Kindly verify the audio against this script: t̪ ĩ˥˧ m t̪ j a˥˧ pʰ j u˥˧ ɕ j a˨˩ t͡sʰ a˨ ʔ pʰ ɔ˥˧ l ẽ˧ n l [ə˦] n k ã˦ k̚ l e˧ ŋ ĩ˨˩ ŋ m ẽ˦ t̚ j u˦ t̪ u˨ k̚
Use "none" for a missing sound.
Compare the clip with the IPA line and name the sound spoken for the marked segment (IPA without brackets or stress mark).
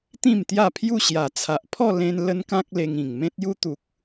ə˦